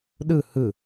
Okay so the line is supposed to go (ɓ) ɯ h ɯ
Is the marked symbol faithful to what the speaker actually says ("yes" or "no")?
no